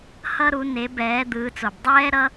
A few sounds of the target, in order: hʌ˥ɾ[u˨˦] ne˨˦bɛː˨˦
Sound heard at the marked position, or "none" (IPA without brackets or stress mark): u˨˦